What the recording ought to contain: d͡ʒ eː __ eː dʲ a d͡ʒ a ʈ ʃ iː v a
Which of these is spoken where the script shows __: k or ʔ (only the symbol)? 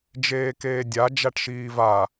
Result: k